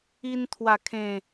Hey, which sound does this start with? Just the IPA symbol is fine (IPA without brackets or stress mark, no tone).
i